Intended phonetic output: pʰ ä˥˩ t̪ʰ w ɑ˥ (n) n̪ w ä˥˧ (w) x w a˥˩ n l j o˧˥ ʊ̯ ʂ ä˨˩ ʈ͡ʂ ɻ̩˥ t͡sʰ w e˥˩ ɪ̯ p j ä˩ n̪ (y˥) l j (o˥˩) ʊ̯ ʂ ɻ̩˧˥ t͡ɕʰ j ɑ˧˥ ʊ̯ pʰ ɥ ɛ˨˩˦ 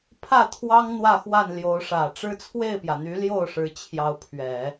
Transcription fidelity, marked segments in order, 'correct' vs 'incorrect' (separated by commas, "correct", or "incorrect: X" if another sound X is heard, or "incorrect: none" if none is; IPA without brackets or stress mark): incorrect: ŋ, incorrect: none, incorrect: y˧˥, correct